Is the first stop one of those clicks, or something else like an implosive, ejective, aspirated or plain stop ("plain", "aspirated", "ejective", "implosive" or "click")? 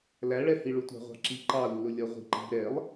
plain